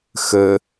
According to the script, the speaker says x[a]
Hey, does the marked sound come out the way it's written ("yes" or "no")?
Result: no